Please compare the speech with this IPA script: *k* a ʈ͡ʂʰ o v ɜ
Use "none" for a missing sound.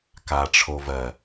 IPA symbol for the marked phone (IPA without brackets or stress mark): k